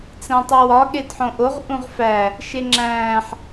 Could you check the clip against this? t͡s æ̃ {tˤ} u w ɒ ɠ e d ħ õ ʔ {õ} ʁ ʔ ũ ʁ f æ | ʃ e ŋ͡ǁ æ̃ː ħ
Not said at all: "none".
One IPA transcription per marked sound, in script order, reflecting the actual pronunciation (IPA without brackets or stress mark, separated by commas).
tˤ, o